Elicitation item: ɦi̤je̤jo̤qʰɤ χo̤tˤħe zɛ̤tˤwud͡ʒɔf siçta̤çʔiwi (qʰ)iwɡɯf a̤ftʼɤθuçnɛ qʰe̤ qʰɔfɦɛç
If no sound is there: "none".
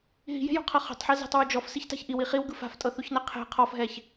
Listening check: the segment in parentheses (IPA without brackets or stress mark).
χ